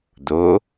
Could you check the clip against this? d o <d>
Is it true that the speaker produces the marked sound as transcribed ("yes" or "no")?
no